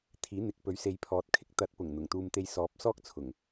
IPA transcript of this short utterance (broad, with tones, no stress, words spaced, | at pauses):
t̪ʰiː˨˥n̪ɪ˨k̚pɵ˨˥ɥ se˨˧jpʰɔː˨˥t̚kʰɪ˨˥k̚ t̪ɐ˨˥t̚pʊ˨˩ŋ n̪ʊ˨˩ŋt̪uː˧mt̪e˧jsɔː˨˥p̚ sɔː˥k̚t͡sʰʊ˨˩ŋ